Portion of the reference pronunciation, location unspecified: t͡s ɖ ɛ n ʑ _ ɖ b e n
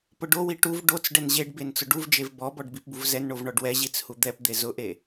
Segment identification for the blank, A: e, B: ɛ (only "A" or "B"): A